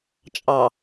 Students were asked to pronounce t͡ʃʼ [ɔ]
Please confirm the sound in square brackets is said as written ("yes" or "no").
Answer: no